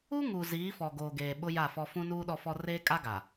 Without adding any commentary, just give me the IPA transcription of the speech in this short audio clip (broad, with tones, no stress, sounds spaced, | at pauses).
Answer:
u˦ ŋ u˨ z iː˨˦ f ɔ˨ ɡ oː˨ ɡ eː˨ ɓ ʊ˦ j a˦˨ f ɔ˦ f ũ˦ n uː˦ ɗ ɔ˦ f ɔ˦ r eː˦ kʼ a˦ ɡ a˨